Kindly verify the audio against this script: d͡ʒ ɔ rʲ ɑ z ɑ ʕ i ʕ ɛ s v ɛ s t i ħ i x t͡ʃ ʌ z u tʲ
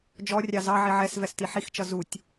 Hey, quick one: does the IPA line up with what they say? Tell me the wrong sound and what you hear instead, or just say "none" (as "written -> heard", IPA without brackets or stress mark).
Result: none